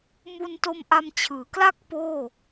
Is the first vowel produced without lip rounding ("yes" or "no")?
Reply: no